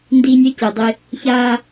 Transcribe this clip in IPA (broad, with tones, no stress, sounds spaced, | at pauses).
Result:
n d iː˨ nʲ ɛ˦ c e˨ dˤ i˦ | ç aː˦